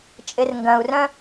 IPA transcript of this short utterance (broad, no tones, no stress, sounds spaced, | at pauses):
t͡ʃʼ ɪ r ŋ ɡ ɐ̃ u̯ r œ̃